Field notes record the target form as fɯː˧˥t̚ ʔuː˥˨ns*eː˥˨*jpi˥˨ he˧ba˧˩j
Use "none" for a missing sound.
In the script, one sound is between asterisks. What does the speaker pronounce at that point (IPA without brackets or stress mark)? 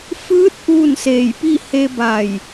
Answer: eː˧˩